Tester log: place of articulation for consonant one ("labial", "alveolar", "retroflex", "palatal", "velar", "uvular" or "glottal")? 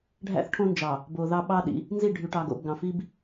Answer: retroflex